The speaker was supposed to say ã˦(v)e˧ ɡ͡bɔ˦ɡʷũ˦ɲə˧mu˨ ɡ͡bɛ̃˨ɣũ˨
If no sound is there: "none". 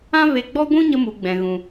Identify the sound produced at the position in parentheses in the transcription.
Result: v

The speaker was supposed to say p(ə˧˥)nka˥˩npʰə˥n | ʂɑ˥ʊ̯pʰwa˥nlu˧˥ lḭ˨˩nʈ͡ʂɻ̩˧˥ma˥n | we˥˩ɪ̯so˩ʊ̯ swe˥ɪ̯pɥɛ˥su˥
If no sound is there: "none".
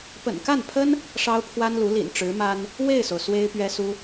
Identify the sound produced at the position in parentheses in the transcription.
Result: ə̰˨˩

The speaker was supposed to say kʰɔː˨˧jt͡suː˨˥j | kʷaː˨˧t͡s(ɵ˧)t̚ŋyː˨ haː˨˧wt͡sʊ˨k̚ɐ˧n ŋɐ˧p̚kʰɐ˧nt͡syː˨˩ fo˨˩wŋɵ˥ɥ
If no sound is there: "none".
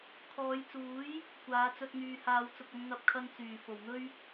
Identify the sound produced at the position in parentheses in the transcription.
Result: ɵ˧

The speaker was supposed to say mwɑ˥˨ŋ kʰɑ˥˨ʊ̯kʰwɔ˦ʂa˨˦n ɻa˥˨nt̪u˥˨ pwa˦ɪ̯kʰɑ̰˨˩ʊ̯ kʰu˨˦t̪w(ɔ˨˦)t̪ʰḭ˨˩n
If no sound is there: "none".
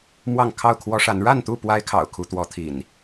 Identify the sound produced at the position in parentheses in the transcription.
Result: ɔ˨˦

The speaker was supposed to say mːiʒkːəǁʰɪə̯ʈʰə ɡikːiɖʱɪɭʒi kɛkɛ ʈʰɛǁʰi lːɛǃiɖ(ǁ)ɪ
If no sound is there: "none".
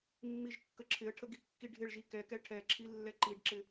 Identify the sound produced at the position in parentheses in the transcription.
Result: ǁ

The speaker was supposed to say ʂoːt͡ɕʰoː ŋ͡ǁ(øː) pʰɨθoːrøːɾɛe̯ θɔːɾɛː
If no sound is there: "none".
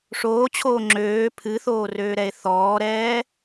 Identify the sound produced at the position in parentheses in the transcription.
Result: øː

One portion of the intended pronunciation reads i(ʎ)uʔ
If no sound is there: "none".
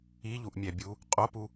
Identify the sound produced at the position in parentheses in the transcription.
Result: ʎ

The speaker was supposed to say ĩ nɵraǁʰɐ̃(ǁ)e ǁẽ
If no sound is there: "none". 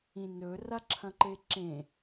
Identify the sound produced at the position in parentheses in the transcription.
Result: ǃ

